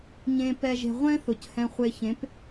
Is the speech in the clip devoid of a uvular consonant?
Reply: no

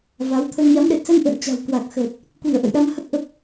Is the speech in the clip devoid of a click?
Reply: yes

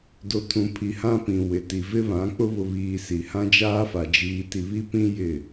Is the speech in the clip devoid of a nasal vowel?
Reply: no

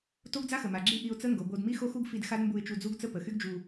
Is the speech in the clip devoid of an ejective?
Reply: yes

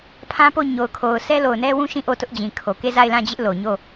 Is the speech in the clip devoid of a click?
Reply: yes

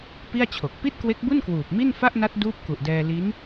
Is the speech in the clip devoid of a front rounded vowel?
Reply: yes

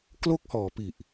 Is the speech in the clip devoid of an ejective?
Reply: yes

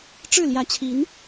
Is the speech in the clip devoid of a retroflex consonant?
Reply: no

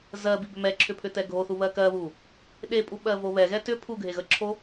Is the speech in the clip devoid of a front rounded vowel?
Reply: no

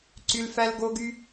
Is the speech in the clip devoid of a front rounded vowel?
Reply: no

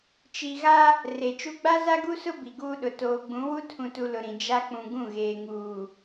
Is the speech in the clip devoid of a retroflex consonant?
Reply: yes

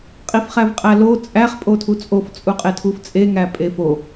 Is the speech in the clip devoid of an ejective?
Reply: no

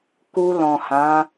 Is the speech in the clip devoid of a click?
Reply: yes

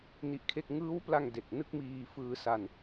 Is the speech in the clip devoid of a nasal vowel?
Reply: yes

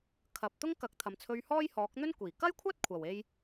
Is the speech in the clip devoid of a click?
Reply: yes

